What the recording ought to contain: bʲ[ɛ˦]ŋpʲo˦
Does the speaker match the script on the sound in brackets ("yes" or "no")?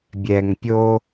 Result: no